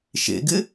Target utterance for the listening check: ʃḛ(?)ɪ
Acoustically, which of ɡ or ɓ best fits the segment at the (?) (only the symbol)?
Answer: ɡ